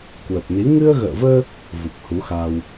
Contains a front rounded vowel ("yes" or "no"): no